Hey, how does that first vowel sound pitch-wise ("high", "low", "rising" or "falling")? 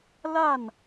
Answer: falling